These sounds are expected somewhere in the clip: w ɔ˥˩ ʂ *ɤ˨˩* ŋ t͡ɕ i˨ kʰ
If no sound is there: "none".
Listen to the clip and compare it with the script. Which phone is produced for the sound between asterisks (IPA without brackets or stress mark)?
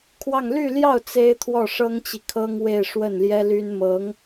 ɤ˥